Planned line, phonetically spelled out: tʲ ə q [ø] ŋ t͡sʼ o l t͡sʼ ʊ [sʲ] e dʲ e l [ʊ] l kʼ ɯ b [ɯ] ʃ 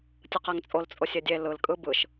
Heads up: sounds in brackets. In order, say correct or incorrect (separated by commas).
incorrect, correct, incorrect, correct